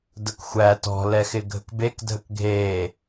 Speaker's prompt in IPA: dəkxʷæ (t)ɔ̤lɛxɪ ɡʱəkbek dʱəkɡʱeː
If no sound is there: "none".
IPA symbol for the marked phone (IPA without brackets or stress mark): t